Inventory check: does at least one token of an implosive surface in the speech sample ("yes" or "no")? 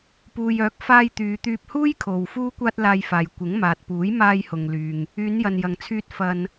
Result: no